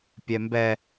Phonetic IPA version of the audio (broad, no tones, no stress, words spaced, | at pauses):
pʲɛmbɛ